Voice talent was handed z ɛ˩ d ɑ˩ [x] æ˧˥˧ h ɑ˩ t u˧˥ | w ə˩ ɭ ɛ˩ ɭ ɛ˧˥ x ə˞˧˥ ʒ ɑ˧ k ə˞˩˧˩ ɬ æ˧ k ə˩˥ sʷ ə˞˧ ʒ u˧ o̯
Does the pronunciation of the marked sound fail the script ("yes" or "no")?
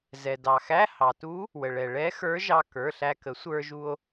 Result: no